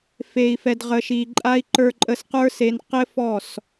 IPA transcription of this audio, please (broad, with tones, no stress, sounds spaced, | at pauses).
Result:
f e˨ i̯ f ɛ˨ d ʁ ə˨ ʃ i˨ ǃʼ a˧ i̯ ǃ ə˞˧ ǃʼ ə˧ s q ə˞˦ s e˧ n q ɘ˦ f ɔ˦˨ s